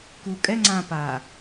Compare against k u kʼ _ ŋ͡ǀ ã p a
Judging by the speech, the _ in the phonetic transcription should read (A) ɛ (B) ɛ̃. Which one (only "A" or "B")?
A